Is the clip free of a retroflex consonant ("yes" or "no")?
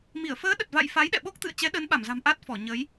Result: yes